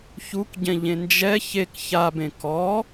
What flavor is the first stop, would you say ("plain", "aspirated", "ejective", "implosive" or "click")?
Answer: plain